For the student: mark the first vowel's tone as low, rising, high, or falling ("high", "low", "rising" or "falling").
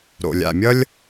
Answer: low